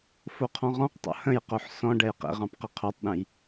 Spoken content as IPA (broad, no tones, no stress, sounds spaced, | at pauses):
f o qʰ ɔ̃ ʁ ɔ̃ q tˤ o̰ h ə̃ j q o ħ s ɔ̃ ɖ ɛ j q ḛ ʁ ɑ̃ p q ə qʰ o tˤ ɗ ẽ j